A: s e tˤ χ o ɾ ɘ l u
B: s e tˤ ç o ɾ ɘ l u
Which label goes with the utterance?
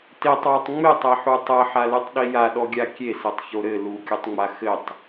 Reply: B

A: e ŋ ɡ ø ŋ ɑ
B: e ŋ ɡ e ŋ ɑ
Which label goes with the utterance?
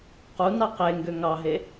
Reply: A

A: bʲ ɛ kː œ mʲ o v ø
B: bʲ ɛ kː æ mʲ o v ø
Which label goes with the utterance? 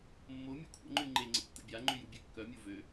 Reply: A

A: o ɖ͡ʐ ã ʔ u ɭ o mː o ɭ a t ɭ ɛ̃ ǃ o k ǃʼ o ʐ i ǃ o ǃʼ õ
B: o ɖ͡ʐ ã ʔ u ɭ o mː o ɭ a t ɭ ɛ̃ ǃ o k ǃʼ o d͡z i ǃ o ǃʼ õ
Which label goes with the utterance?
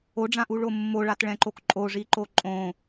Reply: A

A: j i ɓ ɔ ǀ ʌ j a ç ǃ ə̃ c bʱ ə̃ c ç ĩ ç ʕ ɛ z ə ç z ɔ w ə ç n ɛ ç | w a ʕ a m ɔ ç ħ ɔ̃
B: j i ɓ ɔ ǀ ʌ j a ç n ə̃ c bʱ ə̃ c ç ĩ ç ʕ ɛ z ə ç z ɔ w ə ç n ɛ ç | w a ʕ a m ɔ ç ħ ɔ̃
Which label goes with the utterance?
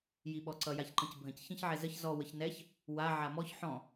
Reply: A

